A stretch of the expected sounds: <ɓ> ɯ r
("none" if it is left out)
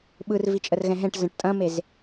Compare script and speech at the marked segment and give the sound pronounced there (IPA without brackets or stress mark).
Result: ɓ